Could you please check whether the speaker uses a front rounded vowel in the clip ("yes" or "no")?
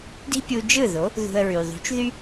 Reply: yes